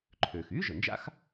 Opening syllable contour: low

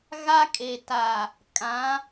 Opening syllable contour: high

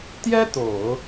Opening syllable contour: high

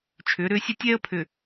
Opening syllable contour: rising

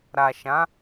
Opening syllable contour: low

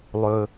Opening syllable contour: low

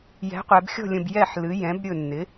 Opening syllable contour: rising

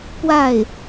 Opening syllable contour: falling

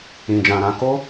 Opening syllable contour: low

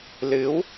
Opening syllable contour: rising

